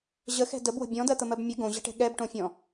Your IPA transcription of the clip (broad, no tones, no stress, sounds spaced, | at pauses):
ʑ ə x ɛ̤ d ə b w ə̤ bʲ ɔ̃ d ɜ t̪ ə m ɜ b mʲ ə ɡ õ ʑ ə̤ ʈ ɛ̤ ɠ ɛ b ʈ õ fʲ ɔ̃